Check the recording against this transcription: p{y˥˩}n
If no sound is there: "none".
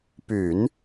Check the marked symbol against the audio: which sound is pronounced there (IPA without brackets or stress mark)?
y˨˩˦